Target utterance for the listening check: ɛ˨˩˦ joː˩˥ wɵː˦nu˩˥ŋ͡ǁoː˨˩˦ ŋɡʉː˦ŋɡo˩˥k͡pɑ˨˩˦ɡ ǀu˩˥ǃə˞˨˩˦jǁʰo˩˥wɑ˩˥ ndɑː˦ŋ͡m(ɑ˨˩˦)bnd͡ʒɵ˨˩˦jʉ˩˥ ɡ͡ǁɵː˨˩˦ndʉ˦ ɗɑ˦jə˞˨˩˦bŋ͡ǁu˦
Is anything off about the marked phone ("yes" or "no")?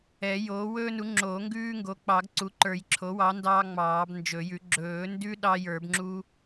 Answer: yes